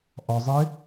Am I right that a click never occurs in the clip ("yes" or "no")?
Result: yes